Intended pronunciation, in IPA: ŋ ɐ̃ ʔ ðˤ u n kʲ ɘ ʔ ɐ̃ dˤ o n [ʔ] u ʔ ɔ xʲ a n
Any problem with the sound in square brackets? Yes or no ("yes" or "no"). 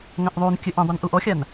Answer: no